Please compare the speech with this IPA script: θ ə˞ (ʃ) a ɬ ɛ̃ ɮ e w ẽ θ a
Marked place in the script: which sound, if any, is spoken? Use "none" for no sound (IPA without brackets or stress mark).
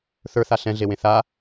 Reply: θ